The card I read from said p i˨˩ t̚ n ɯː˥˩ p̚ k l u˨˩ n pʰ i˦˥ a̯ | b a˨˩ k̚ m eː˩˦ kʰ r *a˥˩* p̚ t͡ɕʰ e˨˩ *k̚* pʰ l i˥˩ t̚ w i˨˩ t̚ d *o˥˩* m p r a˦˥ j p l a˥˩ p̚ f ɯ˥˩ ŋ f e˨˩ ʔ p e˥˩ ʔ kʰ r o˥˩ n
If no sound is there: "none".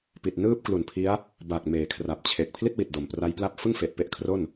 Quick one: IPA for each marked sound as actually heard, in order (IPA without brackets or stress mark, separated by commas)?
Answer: a˨˩, k̚, o˨˩